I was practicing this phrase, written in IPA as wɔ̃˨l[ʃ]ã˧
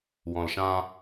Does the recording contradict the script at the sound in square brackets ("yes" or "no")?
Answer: no